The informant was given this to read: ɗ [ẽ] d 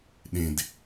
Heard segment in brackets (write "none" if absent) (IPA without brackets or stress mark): ẽ